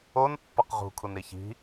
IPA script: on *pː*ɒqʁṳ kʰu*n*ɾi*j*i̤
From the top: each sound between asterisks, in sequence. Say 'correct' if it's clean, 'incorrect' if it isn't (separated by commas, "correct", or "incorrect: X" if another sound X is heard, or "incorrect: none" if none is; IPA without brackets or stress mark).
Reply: correct, correct, incorrect: ç